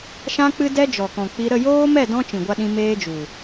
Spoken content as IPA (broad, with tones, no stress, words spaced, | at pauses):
ʃã˦k͡pɨ˦ dɛ˦d͡ʒɔ˨kɔ̃˨k͡pi˧ ɾə˦˨joː˦mɛ˦˨ dɔ̃˦t͡ʃĩ˨ɡʷa˧ɗĩ˧ meː˦d͡ʒu˨